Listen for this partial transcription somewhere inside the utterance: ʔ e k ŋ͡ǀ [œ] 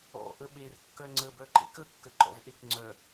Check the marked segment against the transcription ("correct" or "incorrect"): correct